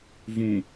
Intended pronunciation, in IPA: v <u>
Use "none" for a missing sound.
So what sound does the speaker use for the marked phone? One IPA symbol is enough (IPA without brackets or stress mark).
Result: ũ